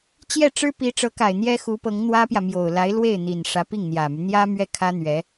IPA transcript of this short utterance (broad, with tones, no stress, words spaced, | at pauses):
t͡ɕjɛ˥˩ʈ͡ʂɻ̩˥pi˧˥ ʈ͡ʂɤ˧˥ka˨˩ɪ̯ n̪jɛ˥ xu˧˥pɤ˧˥ŋn̪wä˥pjä˨ mjo˨˩ʊ̯la˧˥ɪ̯lwe˥˩ɪ̯n̪i˨˩n ʂä˧˥pi˥˩ŋn̪jä˨˩my˦ n̪jä˥ mɥɛ˥˩kʰä˥n̪ɥɛ˧˥